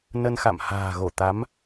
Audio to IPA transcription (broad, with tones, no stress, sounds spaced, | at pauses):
n ə˧ n x a̰˧˨ m h a̤ː˨˩ ɣ o˧˩ t̪ a˨˦ m